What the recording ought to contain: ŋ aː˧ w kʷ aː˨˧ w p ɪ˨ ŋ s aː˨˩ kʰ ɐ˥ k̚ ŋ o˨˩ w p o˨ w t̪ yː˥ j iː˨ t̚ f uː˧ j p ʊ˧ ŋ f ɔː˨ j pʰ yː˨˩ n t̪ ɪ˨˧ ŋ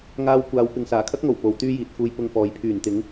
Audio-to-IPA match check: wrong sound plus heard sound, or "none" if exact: none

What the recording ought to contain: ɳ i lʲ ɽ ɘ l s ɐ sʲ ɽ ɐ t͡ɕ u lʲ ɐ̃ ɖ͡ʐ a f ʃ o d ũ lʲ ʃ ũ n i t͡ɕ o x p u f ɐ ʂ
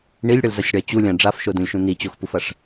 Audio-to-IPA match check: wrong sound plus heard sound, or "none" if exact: s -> z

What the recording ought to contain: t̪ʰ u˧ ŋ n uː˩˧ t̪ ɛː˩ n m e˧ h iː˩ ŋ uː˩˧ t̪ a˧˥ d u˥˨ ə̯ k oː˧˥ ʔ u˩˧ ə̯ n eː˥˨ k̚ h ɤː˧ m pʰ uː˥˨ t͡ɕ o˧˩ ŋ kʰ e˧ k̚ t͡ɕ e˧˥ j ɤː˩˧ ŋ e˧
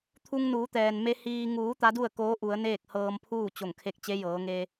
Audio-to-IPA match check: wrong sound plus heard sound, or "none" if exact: none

